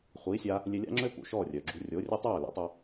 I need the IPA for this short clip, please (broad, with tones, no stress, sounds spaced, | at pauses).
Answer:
χʷ iː˩˥ sʲ a˧ | lʲ e˧ lʲ a̰˥ ŋ͡ǁ ø˥ p ṵ˩ ʃ ɔ˥˩ rʲ œ˩ ɡ͡ǁ ṳ˧ rʲ o˩˥ rʲ e˥ tˤ œː˥˩ l ḭ˩˥ tˤ ø˧